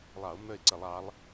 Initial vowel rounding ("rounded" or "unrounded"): unrounded